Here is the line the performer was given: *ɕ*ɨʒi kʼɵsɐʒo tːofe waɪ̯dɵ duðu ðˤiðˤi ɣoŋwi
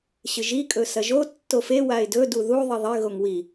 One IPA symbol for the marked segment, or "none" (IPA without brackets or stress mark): ɕ